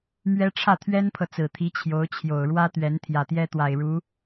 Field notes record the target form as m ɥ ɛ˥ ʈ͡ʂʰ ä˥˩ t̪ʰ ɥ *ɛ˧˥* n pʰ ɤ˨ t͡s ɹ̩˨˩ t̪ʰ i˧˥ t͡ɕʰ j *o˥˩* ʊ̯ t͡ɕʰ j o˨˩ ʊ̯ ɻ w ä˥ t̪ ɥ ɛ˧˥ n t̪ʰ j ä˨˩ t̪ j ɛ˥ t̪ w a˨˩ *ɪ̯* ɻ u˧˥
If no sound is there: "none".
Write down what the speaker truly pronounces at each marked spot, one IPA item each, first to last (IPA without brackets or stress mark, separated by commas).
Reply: ɛ˥, o˧˥, ɪ̯